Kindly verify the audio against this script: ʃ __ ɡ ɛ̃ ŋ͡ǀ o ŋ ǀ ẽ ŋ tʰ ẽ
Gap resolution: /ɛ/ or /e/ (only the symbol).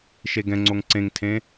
e